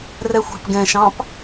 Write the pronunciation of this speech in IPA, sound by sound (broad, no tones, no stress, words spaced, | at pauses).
rɛxʷɑ̤pɡɛ̃ʃɑ̃p